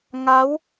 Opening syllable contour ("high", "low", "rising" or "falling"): rising